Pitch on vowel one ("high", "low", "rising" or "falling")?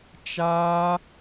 high